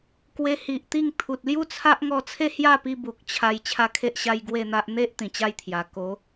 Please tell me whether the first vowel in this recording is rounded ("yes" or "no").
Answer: no